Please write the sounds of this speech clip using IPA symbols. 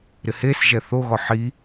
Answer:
ɾɪhesʒɛ θoɣɔ ħi

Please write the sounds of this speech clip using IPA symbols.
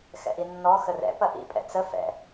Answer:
xɛ̰ʔinːɔ xərɛ̰ pɐʔḭ pʼɛ̰t͡sə fɛ̰

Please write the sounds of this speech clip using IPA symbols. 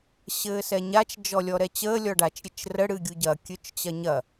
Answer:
ɕɘːsɛɲat͡ʃ d͡ʒɔlʲɔɾɛt͡ɕəː lʲɔɖat͡ʃ ɾʲɘt͡ʃrə ɽɨɡʲuɟɐ kʲøt͡ʃt͡ɕɐɲɐ

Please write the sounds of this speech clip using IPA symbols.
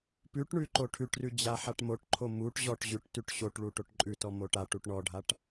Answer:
pʉʈɳʉ ǃoʈʰʉʈrʉ d͡ʑaħaʈmoʈǃʰo muʈ ʑɔʈ ʑʉʈtʉʈ ɕoʈɭu ʈoʈǃʼʉtɔ moʈaʈuʈ ɳɔɖʱaʈ

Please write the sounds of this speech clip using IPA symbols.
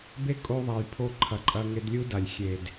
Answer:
be˦kʼo˧ðˤa˨j pʰo˧ ǃʰɐ˨ǃʼɐ˧ŋe˧d lʲu˦da˨lʲ xʲe˨d

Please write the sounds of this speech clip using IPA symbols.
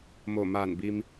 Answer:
moː˧˩maː˧˩nbi˧m

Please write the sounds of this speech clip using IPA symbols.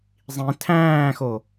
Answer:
zˤĩ tʰæ̃ːxo

